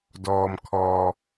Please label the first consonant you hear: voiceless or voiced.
voiced